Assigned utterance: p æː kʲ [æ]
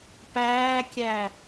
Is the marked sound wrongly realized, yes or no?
no